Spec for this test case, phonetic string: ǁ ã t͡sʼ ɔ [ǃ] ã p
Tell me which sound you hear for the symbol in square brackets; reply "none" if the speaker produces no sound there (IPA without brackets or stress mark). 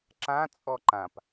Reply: ǃ